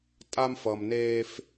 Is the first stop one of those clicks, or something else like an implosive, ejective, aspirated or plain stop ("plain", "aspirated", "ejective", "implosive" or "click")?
ejective